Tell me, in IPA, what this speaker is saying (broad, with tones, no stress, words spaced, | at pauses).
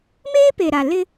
meː˦ pe˨ɾa˨ lɪ˦